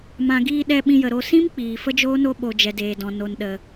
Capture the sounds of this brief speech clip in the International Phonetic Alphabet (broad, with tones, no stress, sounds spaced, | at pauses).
m ã˨ ɡ iː˧ ɗ ɛ˧ ɓ ĩ˧ j ə˨ ɾ o˧ s ĩ˦ m k͡p iː˨ f ə˦ d͡ʒ oː˦ n o˦ ɓ o˧ d͡ʒ ɛ˧ d eː˨ d ɔ̃˨ n o˨ n ɗ ə˨